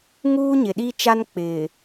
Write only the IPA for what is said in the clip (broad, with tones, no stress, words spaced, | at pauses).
ŋuː˦ɲɪ˨ɗi˦t͡ʃa˦n k͡pɪ˨